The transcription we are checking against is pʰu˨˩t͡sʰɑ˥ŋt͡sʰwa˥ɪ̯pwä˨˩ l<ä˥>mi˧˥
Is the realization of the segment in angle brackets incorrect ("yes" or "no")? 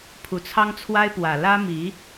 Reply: no